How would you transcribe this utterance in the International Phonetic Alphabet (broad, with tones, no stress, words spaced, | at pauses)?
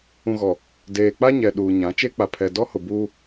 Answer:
ũ˨ɣɔ˨ | deː˨k͡pa˦ɲɛ˨ ɗuː˨ɲã˨˦ t͡ʃe˦k͡pa˨pʰɛ˨ dɔ˦hʊ˨ buː˦